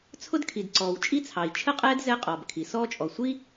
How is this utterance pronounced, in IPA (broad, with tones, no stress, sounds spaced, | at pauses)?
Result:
t͡sʰ ʊ˥ d kʰ i˩ d ǀ ɔː˩ w t͡ʃʼ i˥ t͡sʰ ɑ˩ i̯ t͡ʃʰ ə˥ qʼ ɛː˥ d z ɛ˥ qʼ ɔː˩ b kʰ i˩ s ɔː˥ t͡ʃʼ ɔ˩ sʷ i˥